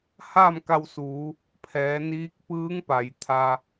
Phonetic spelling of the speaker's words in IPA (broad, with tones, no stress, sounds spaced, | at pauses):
h aː˥˨ m k a˧ w s uː˩˧ | pʰ ɛː˩˧ n iː˧˥ k̚ p ɯː˧˥ ŋ p a˩ j t̪ʰ a˧